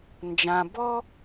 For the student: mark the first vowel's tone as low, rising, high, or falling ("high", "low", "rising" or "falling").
low